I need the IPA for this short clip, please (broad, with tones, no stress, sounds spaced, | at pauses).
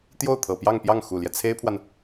t̪ j o˥˩ ʊ̯ t̪ʰ ɤ˨˩ p j ɑ˥˧ ŋ p j ɑ˥˩ ŋ x u˨˩ l j ɛ˦ t͡sʰ e˥ ɪ̯ pʰ w a˨ n